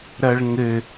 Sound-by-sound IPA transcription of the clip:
ɾɐɭŋɘ

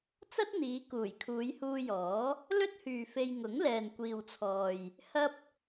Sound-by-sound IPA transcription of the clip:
t͡sɐ˥t̚n̪iː˨˧ kuː˨˩j kʰuː˨˧jhuː˧jɔː˨˥ | lɵ˥t̚hyː˨fe˧j ŋʊ˨˥ŋlɛː˨nkʷiː˨wt͡sʰɔː˨j | hɐ˥p̚

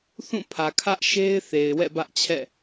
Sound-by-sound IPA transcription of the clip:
θũ˦˨pʰä˨ kʰä˦ʔ ʃe˦ɪ̯ θe˨ɪ̯wɛ̰˦˨bä˦ʔt͡ɕʰɛ̰˦˨

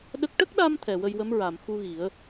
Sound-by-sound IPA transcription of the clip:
ɗə˦˥k̚ ʈə˦˥k̚ɗa˧m t̪ʰɛ˨˩wə˧jwə˧˥m ɹa˨˩˨mxu˧ɣi˨˩˦ə̯

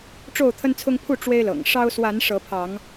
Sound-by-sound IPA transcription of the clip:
ʈ͡ʂo˥˨ʊ̯t̪ʰə˦nt͡sʰʊ˦ŋ pʰu˥˨ ʈ͡ʂwe˦ɪ̯lɤ̰˨˩ŋ ʂɑ˦ʊ̯ swa˨˦n ʂɤ˨˦pʰɑ˨˦ŋ

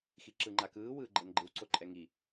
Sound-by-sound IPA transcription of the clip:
xiǁɯŋ͡ǃakɯː wɯːɡ͡ǃɤnɡ͡ǃɯw ǀoǃʼɛŋi

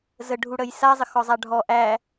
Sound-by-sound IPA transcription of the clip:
zəɖʱuɽəj sazˤə xɔzˤaɖʱɔ ʔæ

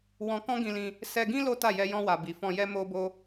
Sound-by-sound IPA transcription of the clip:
wɔ̃˧ kɔ̃˦ɡĩ˧lĩ˧ | sɛ˧ɡĩ˦ lo˦ta˦˨ jɛ˧ jɔ̃˧wa˨ bi˨fɔ̃˧jɛ˦ mo˦bo˦

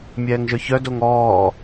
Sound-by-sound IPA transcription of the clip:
mʲɛːŋʒœçœdoŋ ɔː

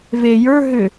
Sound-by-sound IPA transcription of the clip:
ve jə˞ ɦʏ

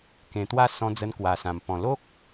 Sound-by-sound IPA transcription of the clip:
kẽ˨˩t̪wa˥˧ sɔ̃˧ d͡zə˧nkwa˨˩sã˨˩m pɔ̃˨˩lo˦k̚

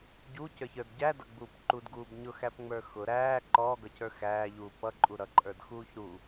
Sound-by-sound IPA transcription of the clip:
ɟucə˞çə˞d ɟædʌɡ͡buːp ǃudɡuːb ɲʊxæpŋ͡mə˞ xʊ ɾæː ǃɔːɡʌcə˞ xæːʎuː pʌǃʼu ɾʌǃʼə˞dxuːç ɾu

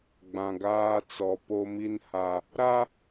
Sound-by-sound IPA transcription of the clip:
ɡ͡bã˨ɡaː˦t͡sɔ˨ po˦mi˦nha˨ | ɾa˦

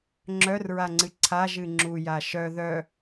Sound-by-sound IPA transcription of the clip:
ŋ͡ǁœrɹaŋ͡ǀɨ ǀʰaʒɨ ŋ͡ǁuja ʃœ ðœ

